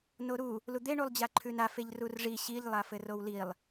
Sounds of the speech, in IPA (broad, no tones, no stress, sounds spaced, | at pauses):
n o ɾ u | l u d̪ e ɳ u lˠ d͡ʑ a ǃʰ ʉ n a f e ʎ r u r ʐ i ɕ i ʎ lˠ a f ɘ r o w l i lˠ